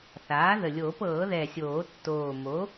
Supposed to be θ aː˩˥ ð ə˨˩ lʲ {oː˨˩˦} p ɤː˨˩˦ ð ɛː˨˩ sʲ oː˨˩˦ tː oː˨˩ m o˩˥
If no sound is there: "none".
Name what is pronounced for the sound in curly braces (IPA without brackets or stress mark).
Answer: oː˨˩˦